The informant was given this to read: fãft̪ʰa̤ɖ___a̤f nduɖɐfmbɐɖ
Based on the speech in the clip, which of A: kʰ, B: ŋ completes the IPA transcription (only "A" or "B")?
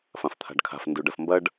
A